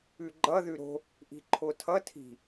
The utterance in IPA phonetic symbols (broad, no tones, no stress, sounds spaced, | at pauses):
ʉ ɡ͡ǃ ʌ ð ʉ ɾ o̤ | ʔ i̤ ǃʰ o tʰ ʌ tʰ i̤